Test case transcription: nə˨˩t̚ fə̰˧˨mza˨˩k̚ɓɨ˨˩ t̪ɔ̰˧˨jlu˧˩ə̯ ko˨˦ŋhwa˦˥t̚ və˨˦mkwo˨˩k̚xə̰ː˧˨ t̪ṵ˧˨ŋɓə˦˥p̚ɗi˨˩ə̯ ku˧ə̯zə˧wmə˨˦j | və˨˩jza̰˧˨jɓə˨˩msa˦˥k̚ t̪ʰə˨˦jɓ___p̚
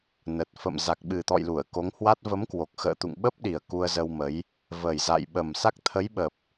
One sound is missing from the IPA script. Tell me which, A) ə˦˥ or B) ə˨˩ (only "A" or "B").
B